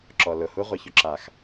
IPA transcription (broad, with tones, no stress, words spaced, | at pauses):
ǁɔ˨lʊ˨hu˦ ʁʷɛ˨çʊ˨ǁa˨x